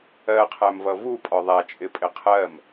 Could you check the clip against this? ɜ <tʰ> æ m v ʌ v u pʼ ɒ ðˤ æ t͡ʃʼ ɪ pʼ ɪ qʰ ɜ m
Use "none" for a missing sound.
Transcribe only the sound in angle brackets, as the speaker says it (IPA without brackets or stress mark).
qʰ